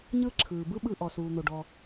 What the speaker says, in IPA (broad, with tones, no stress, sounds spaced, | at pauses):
ɲ ɯ˥ ǁʰ ɯː˩ b ɯ˥ ɓ ɯ˧ ʔ ɔ˩ s uː˩ n̪ o˩ ɖ ɔ˩